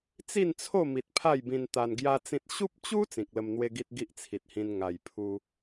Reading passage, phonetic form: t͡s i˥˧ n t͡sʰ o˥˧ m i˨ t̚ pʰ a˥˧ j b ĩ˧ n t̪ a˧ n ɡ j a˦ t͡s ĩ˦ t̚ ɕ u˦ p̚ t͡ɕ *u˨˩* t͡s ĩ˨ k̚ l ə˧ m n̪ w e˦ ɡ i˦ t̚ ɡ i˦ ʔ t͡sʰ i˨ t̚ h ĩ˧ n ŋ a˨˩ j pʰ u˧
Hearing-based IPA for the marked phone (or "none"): u˦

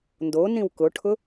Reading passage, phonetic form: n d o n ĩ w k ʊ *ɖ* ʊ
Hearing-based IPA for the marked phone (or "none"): ʈʰ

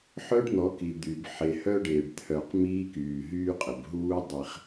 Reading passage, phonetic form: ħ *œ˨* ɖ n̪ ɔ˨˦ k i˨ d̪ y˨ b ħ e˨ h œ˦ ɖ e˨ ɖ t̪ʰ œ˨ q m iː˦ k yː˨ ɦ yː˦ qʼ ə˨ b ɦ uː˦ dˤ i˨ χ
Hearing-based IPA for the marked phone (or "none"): œ˦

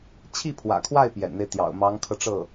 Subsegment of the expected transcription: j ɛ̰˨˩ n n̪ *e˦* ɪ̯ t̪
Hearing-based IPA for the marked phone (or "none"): e˦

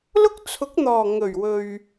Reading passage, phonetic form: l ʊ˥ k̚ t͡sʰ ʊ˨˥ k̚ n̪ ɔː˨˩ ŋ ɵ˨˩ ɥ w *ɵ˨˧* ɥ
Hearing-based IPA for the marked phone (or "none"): ɵ˨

